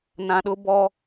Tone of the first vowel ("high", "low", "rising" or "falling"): low